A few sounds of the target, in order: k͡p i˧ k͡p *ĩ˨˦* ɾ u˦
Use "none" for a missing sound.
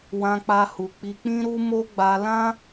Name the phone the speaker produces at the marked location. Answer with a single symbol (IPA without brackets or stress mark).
ĩ˦